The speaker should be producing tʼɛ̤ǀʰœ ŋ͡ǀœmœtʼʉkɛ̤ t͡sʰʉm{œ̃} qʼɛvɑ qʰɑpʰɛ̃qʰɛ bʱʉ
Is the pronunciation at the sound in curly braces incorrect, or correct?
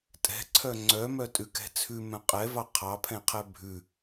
correct